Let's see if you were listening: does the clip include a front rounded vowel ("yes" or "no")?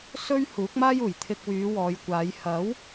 yes